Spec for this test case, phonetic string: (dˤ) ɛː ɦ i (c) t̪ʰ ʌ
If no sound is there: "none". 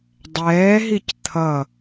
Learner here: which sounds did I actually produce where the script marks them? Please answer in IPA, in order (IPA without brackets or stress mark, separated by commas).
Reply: dˤ, c